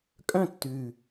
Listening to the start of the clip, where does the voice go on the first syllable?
falling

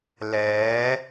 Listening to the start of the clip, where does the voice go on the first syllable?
rising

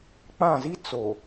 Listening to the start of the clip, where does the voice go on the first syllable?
falling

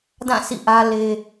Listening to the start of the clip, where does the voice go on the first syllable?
falling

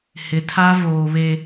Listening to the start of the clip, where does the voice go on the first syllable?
rising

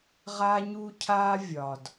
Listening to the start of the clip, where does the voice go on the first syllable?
high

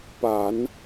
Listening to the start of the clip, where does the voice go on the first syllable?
low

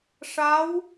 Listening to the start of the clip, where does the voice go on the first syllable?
rising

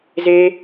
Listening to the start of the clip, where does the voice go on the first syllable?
high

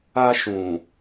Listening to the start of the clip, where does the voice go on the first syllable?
high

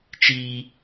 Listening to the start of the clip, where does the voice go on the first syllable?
high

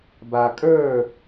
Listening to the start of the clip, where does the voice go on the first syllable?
low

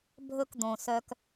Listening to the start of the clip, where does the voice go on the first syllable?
high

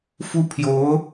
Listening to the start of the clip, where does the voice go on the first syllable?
high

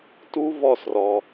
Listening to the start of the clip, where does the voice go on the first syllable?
high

